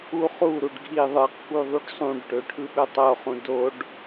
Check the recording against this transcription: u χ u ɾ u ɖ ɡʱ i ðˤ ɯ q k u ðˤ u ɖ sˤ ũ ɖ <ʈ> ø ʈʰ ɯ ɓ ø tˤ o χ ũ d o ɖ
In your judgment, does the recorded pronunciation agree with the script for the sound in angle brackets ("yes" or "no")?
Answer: yes